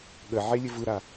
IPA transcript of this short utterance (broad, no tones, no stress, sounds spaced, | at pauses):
ɠ ə ʕ e lʲ ɘ v ɯ ɾ a